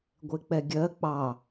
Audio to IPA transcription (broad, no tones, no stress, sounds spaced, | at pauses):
ɡʷ e k͡p ɛ ɡʲ ɜ k͡p ɑ